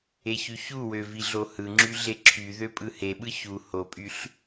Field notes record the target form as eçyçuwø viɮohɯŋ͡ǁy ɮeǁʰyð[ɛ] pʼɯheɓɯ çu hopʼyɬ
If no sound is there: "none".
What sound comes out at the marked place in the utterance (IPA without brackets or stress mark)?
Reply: ø